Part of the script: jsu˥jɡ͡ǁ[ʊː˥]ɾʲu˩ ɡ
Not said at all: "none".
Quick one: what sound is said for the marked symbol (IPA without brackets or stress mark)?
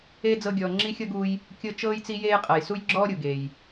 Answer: ɔː˥